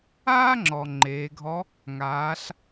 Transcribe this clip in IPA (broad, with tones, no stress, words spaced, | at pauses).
aː˥ŋ͡ǁɔ˩ ŋ͡ǃeː˩˧ɡʱɔ˧˥ | ŋaː˩˧ɬ